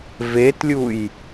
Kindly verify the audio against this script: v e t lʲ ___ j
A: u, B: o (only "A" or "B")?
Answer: A